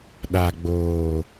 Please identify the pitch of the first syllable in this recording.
low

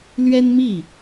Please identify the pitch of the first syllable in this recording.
high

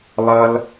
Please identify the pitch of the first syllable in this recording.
high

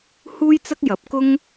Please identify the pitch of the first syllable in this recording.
high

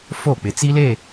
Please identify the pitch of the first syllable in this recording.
falling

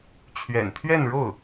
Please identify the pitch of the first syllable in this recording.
low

